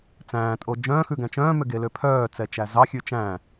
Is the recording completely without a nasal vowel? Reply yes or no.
no